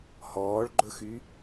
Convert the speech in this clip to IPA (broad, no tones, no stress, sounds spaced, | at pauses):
h ɔː ɭ ɡ͡ǃ ɵ x y